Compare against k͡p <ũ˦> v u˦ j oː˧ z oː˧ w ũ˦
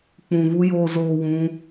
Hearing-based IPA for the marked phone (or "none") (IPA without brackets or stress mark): ũ˧